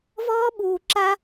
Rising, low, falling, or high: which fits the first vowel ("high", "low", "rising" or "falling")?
high